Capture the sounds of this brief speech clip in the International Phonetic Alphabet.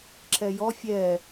ǁɛjɔ fʲɛ

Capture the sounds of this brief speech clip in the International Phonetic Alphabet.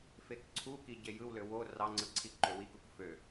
fekǀʰuki ɟejɯwlø wo rɑŋ͡ǀɯ ǀʰiǃøwikuk fø

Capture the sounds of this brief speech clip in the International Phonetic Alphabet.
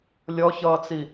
lʲɔçʌːt͡si

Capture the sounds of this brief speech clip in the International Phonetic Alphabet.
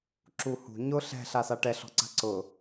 ǁuhṳ ɲʊ ɬɛ̤ ɬasaʈɛ ɬɔ̤ǀa̤ǀʊ

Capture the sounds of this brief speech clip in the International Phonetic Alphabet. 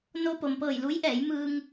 no˧po˩mpɤː˧˩j lu˧˥jʔɛː˩˧j mɯː˧ŋ

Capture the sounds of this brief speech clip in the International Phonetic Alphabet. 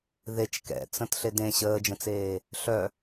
ðet͡ʃ kɛ̰t͡sə̃t ɬedẽ ɕəːd͡ʒə̃t͡seː | ɬœ

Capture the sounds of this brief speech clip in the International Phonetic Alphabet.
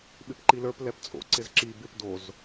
ɓɪpǃilə˞p lɛpt͡sʼo̰ ǀɪzǁi bɪp doz

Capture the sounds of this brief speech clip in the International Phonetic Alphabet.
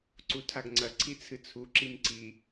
ǀutʰaɡŋ͡ǀɐ ǀʰit͡sʰɨt͡sʰu ǁimǀi

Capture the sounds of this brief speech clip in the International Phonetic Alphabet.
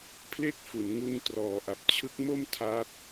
pʰle˥˩k̚fu˩˦n ŋu˧ntrɔː˨˩ʔa˨˩p̚ t͡ɕʰɯ˦˥k̚mo˥˩m tʰa˦˥t̚

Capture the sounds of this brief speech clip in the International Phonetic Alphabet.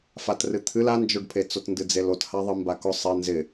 fatrɨt̪ʰɨl and͡ʒoɖpʰet͡sot ndɨd͡zelotha ðˤɨmbakʊ sˤɪ nzɪ

